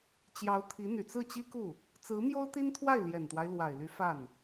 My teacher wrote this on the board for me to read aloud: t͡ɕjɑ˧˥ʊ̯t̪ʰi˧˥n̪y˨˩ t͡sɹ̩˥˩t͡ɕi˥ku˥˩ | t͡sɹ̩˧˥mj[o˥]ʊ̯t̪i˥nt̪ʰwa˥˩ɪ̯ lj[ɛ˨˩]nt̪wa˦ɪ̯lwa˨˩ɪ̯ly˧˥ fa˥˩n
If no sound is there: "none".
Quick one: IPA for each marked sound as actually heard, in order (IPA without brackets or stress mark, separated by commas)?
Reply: o˥, ɛ˨˩